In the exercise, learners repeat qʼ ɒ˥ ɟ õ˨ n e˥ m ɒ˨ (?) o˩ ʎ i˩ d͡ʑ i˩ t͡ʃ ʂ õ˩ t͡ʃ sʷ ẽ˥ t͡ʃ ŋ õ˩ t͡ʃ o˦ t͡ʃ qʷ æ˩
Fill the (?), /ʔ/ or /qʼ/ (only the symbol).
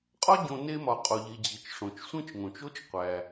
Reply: qʼ